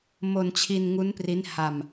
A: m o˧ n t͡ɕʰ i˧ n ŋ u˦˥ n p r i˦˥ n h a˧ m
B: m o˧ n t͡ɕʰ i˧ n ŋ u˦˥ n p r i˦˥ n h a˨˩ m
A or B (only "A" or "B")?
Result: A